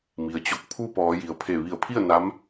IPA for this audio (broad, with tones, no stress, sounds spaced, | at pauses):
m i˩ ə̯ t͡ɕ o˧ k̚ pʰ u˥˨ p ɔː˩˧ j i˩ ə̯ pʰ e˧˩ ʋ i˧˩ ə̯ pʰ i˥˨ ə̯ n a˧˥ m